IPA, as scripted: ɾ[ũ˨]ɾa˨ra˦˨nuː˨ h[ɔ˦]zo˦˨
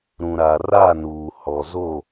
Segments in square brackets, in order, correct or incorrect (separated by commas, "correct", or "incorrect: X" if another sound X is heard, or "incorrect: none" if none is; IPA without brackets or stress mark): correct, incorrect: ɔ˨